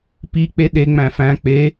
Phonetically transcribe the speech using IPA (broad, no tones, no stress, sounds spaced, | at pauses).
p i k͡p e ɗ e ŋ͡m æ̃ f æ̃ k͡p e